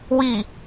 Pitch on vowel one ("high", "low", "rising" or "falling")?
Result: low